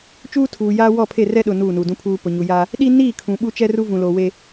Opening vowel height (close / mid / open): close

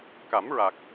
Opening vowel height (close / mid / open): open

